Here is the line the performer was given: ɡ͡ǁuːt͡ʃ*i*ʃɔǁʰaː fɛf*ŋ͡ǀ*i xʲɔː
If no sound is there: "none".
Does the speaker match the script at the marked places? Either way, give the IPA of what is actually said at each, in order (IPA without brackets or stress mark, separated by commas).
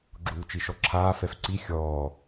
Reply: i, ǀ